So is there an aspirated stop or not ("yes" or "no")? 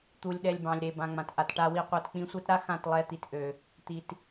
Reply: no